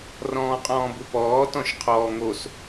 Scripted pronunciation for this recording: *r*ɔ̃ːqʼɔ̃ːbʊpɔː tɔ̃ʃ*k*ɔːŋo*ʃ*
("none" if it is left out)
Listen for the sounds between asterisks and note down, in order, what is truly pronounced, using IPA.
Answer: r, qʰ, s

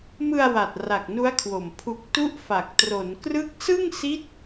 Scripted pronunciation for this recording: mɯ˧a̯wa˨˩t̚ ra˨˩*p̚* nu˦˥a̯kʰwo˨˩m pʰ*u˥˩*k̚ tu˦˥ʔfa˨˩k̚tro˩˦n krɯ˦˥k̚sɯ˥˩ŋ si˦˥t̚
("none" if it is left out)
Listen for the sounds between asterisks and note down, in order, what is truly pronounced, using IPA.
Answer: k̚, u˨˩

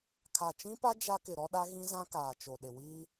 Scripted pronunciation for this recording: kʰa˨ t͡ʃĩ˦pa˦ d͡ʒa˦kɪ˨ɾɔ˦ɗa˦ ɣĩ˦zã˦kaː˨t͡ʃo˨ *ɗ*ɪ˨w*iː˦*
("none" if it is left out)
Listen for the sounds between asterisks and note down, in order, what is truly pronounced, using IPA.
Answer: ɗ, iː˦

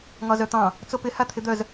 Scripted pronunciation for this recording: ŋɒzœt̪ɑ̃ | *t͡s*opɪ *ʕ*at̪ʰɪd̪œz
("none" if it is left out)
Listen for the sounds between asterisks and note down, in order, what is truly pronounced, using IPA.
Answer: t͡s, h

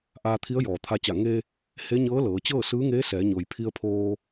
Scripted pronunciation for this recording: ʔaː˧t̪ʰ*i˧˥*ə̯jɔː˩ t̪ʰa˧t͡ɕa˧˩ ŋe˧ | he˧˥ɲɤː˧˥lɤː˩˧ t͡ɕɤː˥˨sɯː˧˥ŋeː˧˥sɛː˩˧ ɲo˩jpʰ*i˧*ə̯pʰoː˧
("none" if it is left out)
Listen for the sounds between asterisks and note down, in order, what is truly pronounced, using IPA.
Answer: i˧˥, i˧

